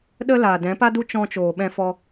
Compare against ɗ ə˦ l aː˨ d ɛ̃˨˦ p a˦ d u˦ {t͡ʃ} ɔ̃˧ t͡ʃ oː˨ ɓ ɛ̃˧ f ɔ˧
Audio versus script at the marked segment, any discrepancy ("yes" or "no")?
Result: no